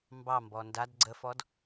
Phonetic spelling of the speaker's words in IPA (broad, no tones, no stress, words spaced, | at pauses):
mbɑmbɔ ndad ɡ͡ǀəfɔd